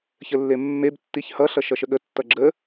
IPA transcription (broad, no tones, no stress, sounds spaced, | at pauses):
ç ə lː e mː e b tː i ç h ʌ ɬ ʌ ʃ ʌ ʃ ə ɠ ə tː ʌ ɡ͡ǁ ə